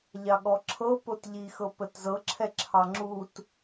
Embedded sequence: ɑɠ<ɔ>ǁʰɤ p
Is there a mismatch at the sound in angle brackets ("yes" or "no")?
no